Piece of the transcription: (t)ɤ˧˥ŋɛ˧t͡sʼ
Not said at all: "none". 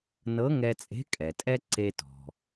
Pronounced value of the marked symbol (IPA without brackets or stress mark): n